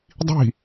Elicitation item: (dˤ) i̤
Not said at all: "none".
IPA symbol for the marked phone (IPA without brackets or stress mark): dˤ